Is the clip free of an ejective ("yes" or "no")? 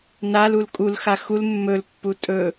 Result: no